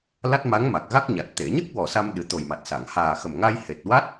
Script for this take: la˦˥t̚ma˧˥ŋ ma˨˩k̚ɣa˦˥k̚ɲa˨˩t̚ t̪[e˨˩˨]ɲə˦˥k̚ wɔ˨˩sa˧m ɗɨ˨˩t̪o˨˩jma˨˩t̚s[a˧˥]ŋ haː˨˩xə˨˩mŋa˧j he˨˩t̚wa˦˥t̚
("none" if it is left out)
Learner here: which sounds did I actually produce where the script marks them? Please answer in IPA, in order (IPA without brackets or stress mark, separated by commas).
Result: e˨˩˨, a˨˩˨